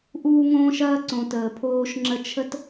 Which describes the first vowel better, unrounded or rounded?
rounded